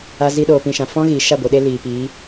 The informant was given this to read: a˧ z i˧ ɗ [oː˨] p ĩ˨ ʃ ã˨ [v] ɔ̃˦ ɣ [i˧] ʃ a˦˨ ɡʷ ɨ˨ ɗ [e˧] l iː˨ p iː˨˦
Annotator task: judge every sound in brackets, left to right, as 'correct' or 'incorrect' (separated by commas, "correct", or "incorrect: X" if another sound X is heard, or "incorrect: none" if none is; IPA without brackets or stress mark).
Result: correct, incorrect: f, incorrect: i˨, correct